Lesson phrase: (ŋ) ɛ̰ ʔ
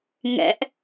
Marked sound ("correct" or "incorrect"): correct